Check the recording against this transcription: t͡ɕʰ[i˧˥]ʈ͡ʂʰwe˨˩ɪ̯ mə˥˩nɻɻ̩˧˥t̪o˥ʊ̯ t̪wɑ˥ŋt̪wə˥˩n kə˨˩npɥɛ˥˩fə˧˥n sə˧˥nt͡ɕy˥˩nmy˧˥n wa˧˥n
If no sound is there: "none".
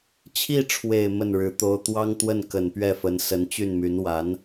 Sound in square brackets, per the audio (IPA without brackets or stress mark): i˥˩